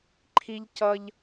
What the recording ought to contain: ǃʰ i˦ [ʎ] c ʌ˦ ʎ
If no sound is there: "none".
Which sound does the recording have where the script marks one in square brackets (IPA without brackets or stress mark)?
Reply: ʎ